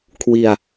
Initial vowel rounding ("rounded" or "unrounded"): unrounded